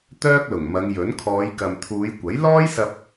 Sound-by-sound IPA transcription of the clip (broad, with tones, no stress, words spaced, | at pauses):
t̪œː˥k̚lʊ˨˩ŋmɐ˨˧ŋ jɵ˨˥n kʰɔː˨˧jkɐ˨mt̪ʰuː˨˧jkʷɐ˨˥j lɔː˥jsɐ˧p̚